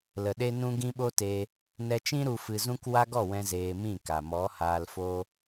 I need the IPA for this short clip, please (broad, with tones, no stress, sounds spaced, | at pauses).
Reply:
l ə˨ ɗ e˦ n ũ˦ ɡ ĩ˦ ɓ o˦ t e˧ | n ɛ˧ t͡ʃ ĩ˦ ɾ u˧ f ɨ˧ z ũ˦ k w a˦ ɡ ɔ˦˨ w ɛ̃˦ z eː˧ m ĩ˦˨ k a˨ m ɔ˨˦ h aː˧ l f o˦